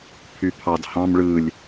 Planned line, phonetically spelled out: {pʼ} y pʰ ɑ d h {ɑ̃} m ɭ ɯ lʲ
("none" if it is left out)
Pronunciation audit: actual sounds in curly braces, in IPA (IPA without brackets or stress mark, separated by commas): pʰ, ɑ̃